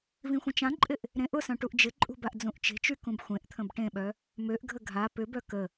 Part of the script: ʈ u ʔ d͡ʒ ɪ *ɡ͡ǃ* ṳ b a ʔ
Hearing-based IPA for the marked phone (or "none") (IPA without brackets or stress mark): ǃʼ